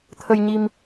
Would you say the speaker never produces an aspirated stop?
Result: no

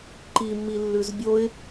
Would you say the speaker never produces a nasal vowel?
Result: yes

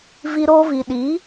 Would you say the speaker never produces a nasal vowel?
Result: yes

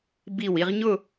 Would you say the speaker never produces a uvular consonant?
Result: no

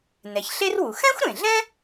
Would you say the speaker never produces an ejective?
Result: yes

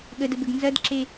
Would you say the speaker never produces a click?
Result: no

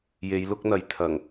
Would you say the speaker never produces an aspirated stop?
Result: no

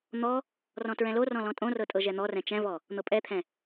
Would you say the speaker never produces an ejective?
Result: no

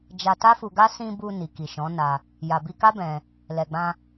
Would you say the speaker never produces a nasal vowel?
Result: no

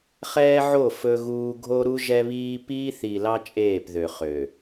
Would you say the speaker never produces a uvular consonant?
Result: no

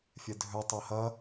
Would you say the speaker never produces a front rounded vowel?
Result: no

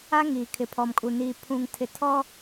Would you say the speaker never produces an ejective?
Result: no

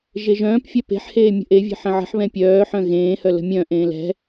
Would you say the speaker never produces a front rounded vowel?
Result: no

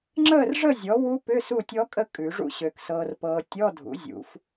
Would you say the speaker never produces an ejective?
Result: no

